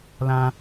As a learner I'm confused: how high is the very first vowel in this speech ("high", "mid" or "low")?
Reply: low